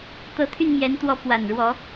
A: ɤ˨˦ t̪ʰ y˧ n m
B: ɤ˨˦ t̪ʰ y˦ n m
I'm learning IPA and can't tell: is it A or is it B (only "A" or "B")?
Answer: A